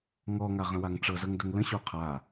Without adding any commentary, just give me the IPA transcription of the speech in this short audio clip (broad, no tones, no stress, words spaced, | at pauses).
ŋɔŋaʁə̃waŋ ʈ͡ʂɤzɤŋdəŋ lə̃ɕo qʰa